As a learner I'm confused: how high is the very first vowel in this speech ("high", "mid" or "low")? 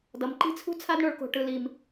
mid